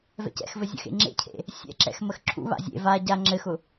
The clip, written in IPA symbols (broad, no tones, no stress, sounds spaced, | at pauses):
v ɛ̰ c ɛ̰ x v ɘ zʲ ə̰ x ḛ ŋ͡ǁ ḛ cʰ ḛ | sʲ ɛ̰ ǁ ɛ̰ x m ə x ǁʰ ṵ β a̰ zʲ ḛ v a ɟ a ŋ͡ǁ ɘ x ʊ